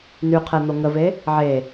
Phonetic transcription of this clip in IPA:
n y qʰ ɛ n̪ o ŋ ə v e | ʕ e

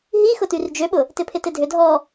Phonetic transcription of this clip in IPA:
ɦ i x ʊ t y r d͡ʒ ø ɓ ʊ | t ɪ pʰ ɪ t ɪ dʱ ʏ dʱ ɔ

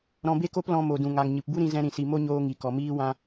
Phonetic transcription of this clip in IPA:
ɾ ɔ̃˧ b e˦ k o˦ p l ɔ̃˧ m o˨ d ũ˨ ŋ a˨ ŋ ɲ ɨ˨ p b u˦ ɾ ĩ˧ z ɛ̃˧ ɾ ĩ˨ s i˨ m o˦ ɲ oː˧ ŋ i˨ k ɔ˨ m iː˦ w ã˧

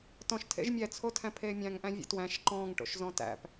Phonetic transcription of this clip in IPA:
t ɔ̃ ʃ tʰ ḛ ʒ mʲ ɛ t͡sʰ o tʰ æ̃ pʰ eː mʲ æ̃ ŋ ʔ æ̃ vʲ ḛ t w æ̃ ʃ ǃ ɔ̃ː ŋ ʈ o̰ ʃ z ɔ̃ t æ̰ p

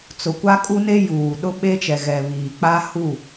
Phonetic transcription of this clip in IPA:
t͡s ʊ˨ kʷ a˦ kʼ u˦ n e˦ j uː˨ ɗ ʊ˦ ɓ e˦ t͡ʃ ɛ˨ ɣ ɛ˨ β iː˨ k͡p a˦ h u˦˨

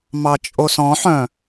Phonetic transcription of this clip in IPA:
m ɑ t͡ʃʼ o s ɔ̃ ħ œ̃

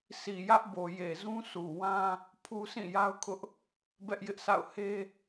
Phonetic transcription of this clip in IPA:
sʰ i˨ j ä˦ ʔ b o˨ j e˨ z ũ˦ sʰ u˨ w ã˦ | pʰ u˦ s ĩ˦˨ j a˦ ʊ̯ kʰ ʊ˦ ʔ | b ɛ˦ ʔ j ɪ˦ ʔ sʰ a̰˦˨ ʊ̯ h e˦

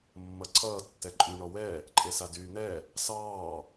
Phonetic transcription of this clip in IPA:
mː ʌ ǀʰ ʌː tː ɛ ǃʼ y ɳ ɔ w ɛ | ǃʼ e s a d yː n̪ ɛ | s ɑː

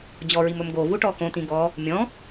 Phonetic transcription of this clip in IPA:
d͡ʑ ɔ ɹ i m ɵ m ɡ o v u ʈ ɔ x õ t̪ ĩ ɡ ɔ | mʲ ɔ̃

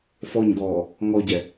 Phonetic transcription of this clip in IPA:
f ɔ ɲ ɡ ɔː | ŋ ɔ ɟ ɛ

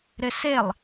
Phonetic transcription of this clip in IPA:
ɾ ɪ s e lˠ

